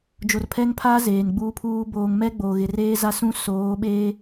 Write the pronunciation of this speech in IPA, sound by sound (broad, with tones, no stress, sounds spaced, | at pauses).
d͡ʒ o˨ r pʰ ɛ˦ ŋ pʰ aː˦ z eː˨ n ɡ͡b uː˦ pʰ uː˦ b oː˨ ŋ m ɛ˦ ɡ͡b o˨ ɣ ɪ˨ r eː˦ z a˦ s ũ˦ s oː˨˦ ɓ eː˦